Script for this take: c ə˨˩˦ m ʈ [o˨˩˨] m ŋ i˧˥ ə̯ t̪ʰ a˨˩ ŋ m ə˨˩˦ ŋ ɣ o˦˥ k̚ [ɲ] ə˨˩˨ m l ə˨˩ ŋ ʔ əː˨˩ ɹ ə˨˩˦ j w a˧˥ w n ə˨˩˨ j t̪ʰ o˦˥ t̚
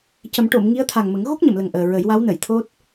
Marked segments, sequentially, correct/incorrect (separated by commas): correct, correct